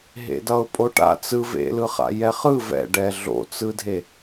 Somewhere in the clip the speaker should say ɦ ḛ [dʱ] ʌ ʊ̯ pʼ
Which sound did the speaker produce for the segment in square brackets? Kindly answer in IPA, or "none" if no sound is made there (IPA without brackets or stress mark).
d